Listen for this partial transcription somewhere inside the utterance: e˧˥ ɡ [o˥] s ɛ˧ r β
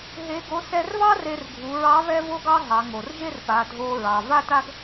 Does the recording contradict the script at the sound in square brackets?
yes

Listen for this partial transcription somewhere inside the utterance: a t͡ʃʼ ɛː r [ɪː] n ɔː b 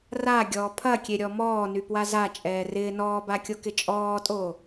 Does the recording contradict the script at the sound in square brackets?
no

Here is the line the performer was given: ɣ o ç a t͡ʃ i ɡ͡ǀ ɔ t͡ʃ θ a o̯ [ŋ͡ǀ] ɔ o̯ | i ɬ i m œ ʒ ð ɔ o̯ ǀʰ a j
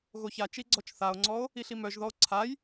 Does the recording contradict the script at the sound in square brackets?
no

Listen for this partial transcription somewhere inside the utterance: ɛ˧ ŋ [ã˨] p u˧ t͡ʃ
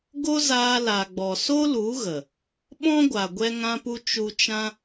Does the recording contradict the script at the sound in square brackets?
yes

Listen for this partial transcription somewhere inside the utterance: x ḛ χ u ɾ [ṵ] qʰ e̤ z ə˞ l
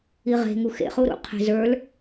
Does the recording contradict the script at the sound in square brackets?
no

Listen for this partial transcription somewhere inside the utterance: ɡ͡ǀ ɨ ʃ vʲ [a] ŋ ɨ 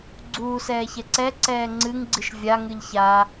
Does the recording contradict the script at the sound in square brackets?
no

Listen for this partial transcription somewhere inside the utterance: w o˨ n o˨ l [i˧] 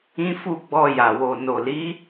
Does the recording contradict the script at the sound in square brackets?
yes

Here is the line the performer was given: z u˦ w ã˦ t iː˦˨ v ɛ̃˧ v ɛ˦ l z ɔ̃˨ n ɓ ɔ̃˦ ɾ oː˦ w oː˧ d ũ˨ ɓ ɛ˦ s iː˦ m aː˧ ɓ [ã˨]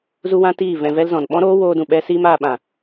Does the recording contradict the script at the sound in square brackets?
no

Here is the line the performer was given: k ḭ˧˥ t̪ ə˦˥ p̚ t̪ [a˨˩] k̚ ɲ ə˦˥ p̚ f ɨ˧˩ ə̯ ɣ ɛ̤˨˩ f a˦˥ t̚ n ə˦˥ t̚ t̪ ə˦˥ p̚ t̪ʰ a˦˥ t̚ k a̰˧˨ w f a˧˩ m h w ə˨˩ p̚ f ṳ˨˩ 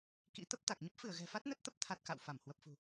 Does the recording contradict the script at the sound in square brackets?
no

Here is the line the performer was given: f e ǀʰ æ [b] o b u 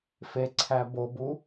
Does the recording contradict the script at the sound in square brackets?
no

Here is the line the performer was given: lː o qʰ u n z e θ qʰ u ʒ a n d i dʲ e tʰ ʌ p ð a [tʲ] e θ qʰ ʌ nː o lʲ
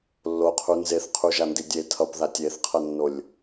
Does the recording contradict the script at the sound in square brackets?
no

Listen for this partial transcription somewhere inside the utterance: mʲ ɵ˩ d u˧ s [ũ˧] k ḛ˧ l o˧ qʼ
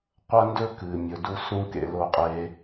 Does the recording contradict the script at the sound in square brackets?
no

